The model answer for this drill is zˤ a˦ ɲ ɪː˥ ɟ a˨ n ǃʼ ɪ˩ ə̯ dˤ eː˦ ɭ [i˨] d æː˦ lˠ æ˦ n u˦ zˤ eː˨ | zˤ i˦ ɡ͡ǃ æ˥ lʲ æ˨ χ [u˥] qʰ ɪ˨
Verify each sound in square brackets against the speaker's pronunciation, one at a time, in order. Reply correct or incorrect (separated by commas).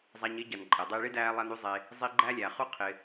incorrect, correct